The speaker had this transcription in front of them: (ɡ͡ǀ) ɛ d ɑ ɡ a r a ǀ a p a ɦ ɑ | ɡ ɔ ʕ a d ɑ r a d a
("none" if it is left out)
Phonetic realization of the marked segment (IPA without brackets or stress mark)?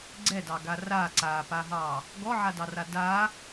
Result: ɡ͡ǀ